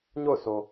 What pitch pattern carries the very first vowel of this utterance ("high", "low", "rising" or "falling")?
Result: falling